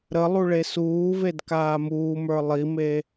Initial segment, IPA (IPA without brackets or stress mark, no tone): ɾ